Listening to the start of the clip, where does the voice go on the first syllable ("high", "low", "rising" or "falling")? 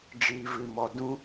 low